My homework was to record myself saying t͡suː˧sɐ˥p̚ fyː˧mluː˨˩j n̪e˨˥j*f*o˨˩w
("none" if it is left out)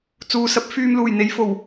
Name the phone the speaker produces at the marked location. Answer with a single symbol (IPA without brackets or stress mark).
f